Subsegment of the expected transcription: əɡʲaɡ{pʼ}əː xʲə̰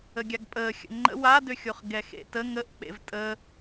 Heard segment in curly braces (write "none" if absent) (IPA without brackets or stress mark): pʼ